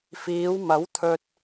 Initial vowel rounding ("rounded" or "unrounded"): unrounded